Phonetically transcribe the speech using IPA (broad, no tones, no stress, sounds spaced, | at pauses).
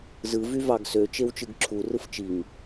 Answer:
z ɯ v y v ɑ ɡ s ø t͡ʃ e w t͡ʃ ɯ ɡ ǁʰ u r ɯ f t͡ʃ i ŋ